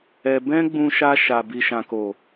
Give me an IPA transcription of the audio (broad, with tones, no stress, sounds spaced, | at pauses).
ɛ˧ b ɛ̃˦ ɡ͡b ũ˧ ʃ a˧ ʃ a˨ b i˨ ʃ ã˨ k o˨